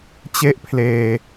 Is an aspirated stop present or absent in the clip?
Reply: present